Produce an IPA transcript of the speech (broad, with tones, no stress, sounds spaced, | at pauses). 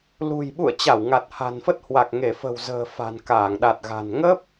l ṳ˨˩ j ɓ ṵ˧˨ ə̯ t͡ɕ a˧˩ w ŋ a˨˩ t̚ h a̤˨˩ n f ə˦˥ t̚ h w a˨˩ k̚ ŋ e˧˩ f ə̤˨˩ w z ə̤ː˨˩ f a̤˨˩ n k aː˧˩ ŋ ɗ a˨˩ t̚ ɣ a̤˨˩ n ŋ ə˦˥ p̚